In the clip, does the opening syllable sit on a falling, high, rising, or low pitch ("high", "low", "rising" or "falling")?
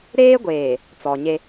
high